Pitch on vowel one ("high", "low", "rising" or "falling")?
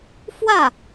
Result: falling